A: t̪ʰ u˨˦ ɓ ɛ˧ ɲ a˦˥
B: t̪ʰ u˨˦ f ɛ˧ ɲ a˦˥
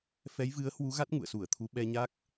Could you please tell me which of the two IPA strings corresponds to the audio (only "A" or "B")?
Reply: A